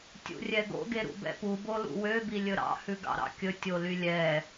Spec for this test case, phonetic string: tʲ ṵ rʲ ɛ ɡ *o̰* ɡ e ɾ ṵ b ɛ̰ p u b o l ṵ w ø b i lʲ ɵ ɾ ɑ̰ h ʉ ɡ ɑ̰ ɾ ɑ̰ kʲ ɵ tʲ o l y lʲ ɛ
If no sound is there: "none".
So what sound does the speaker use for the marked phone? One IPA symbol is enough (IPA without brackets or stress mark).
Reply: o̰